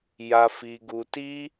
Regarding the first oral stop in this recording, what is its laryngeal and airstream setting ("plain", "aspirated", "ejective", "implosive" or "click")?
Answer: plain